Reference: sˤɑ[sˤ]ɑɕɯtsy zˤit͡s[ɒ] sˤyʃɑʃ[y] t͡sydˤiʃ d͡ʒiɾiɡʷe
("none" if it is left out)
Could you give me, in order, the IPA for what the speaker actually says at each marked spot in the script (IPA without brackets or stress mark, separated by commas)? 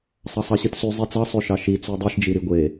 sˤ, ɑ, i